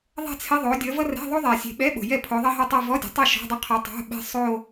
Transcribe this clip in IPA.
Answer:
ðˤ ɛ̤˥˧ t͡sʰ ɪ˧˥˧ ðˤ o˨˦ dʲ ʌ˨˦ v ʌ˥ r ɛ̤˧˥˧ ðˤ o˥ ðˤ ɛ˨˩ sʲ e̤˨˦ ɓ ɛ˧˥˧ ɓ o̤˨˩ j ɛ˥˩ pʰ o˨˦ ðˤ ʌ˥ ɦ ʌ˥˧ tˤ ʌ˥˧ v ɔ˧˥˧ dʲ ɔ̤˨˩ tˤ e˥˩ ʃ ɔ̤˧˥˧ dˤ ɪ˥˧ qʰ ɔ˨˦ tˤ o̤˧˥˧ ɓ e̤˥ sˤ o˥˧

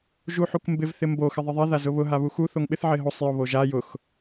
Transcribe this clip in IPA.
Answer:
ʒ u ħ u k m b ɪ v θ ɪ m b o x ɪ ðˤ ɪ ðˤ ɛ ð a z ʊ β ʊ ɦ a β u x u θ o ŋ ɓ ɪ θ ʕ ɪ ɦ o sˤ j ʊ β o ʒ a j ʊ x

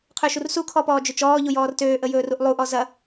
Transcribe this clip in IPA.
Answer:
qʰ ø ʃ u r s u kʰ ɔ p ɔː d͡ʒ ø t͡ʃ ɔː ʎ u j ɔː r t øː ʔ ə j ɵː r u ʔ lˠ u ʔ ɔ z ɐ

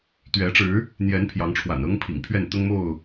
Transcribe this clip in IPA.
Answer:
t̪ ɥ ɛ˨˦ ʈ͡ʂ ɻ̩˨˦ | n̪ j ɛ˨˦ n pʰ j ɑ˨˦ ŋ ʈ͡ʂʰ w a̰˨˩ n ɤ˦ ŋ pʰ ḭ˨˩ ŋ pʰ ɥ ɛ˥˨ n t̪ ʊ˦ ŋ m o˥˨ ʊ̯

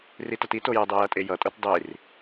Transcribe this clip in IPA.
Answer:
r i t ʌ t i t o j ə dˤ e j ʌ tʼ e j ʌ tʼ o t dˤ i r

